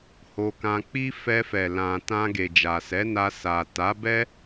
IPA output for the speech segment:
h o˧ k ã˧ k͡p i˦ f ɛ˧ f ɛ˨ l ã˨ t ã˧ ɡ e˨ d͡ʒ a˨ s ɛ˨˦ n a˧ s a˨ t a˨˦ b ɛ˦

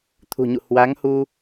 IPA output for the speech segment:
t̪ʰ ṳ˨˩ ɲ ṵ˧˨ h w a˨˦ ŋ h u˧

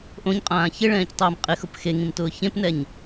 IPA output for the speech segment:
ʔ õ ɲ qʼ ãː ç ɪ ɭ ɛ̃ː c tˤ ʊː m qʼ ɪ x ʊ p x e ŋ ĩ m t ʊː ç ẽ p n ɛ ɲ

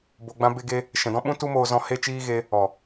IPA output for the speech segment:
b o˧ ɡ͡b ã˦ b e˦ ɡ e˦ | ʃ ɛ̃˨ d ɔ̃˦ ɓ ũ˦ t u˦ m oː˧ z ɔ̃˧ h e˦ t͡ʃ iː˦ ɣ e˧ | ɔ˨

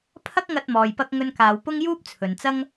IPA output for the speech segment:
pʰ ɐ˥ k̚ ŋ ɐ˧ t̚ m ɔː˨ j p ɐ˧ k̚ ŋ ɵ˧ n k aː˨ w p ʊ˥ ŋ j uː˥ p̚ t͡sʰ ɵ˨ n t͡s ɐ˥ ŋ

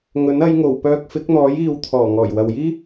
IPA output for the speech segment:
ŋ ɵ˨˥ n ɐ˨˧ j ŋ o˨˩ w p œː˧ k̚ f ɪ˨˥ k̚ n̪ ɔː˨˥ j iː˨ w t̪ʰ ɔː˨˩ ŋ ɔː˨˩ j w ɐ˨ w j iː˥

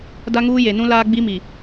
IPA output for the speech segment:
d a˦ ŋ uː˦ j e˨ n ũ˦ l aː˦ ɡ͡b i˦ m i˨

